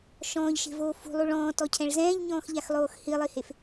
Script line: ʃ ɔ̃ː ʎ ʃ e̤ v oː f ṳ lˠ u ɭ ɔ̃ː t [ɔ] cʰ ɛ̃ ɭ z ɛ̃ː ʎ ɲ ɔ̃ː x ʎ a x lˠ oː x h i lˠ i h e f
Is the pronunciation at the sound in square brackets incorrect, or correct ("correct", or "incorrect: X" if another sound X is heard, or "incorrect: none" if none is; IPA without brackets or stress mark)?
correct